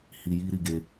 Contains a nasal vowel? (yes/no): no